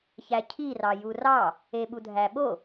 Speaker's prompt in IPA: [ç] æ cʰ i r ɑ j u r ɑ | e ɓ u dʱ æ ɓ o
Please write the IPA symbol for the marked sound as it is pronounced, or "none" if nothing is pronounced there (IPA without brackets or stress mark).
ç